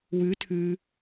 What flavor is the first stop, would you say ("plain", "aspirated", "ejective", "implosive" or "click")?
aspirated